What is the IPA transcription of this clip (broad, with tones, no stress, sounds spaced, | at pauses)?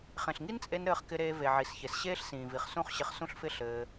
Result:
χ ẽ˨ ɬ ŋ i˦ n t͡sʼ e˧ n ɾ ɘː˧ χ k ɪ˧ ɾ eː˧ v e˨ ʕ i˨ s ç e˨ s ɕ eː˦ ɬ s ĩː˨ v i˨ χ s ũ˦ χ ɕ ɪ˧ χ s ũ˦ ɬ f ɪ˦ ɬ ɘː˧